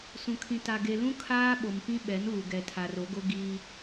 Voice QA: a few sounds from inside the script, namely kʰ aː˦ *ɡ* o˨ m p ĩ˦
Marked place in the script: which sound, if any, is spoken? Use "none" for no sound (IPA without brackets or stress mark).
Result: ɓ